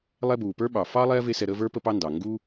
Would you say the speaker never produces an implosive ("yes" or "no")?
no